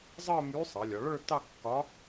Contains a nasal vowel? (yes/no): no